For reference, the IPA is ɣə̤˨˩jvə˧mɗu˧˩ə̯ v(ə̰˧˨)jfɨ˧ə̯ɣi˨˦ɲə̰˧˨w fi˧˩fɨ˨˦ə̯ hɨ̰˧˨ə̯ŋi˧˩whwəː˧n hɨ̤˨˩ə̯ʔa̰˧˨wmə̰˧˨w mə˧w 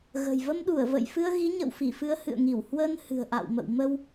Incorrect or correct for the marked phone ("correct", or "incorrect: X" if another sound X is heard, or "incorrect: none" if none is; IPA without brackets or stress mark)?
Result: correct